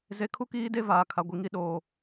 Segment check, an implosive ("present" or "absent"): present